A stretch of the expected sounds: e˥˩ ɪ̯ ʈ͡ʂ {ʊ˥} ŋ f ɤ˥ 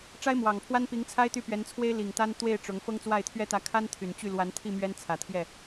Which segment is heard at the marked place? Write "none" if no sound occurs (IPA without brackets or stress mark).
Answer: ʊ˧˥